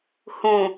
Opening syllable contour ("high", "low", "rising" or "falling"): low